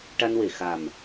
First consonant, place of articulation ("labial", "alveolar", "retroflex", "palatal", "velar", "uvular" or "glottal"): retroflex